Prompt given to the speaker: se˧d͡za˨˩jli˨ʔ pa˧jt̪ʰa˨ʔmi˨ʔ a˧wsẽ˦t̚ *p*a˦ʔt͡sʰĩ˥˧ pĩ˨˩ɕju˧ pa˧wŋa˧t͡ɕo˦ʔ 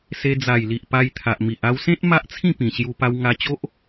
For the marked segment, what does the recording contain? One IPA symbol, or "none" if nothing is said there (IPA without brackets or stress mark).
m